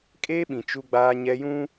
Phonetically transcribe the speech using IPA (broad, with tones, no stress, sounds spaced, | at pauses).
kʼ eː˦ ɓ ĩ˨ t͡ʃ u˦ ɡ͡b aː˦ ɲ ɛ˦ j ũ˦